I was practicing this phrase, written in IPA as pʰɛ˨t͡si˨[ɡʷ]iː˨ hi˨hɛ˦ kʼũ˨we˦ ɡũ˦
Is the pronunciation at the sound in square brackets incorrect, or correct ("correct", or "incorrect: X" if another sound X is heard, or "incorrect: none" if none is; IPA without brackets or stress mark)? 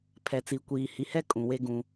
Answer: incorrect: kʷ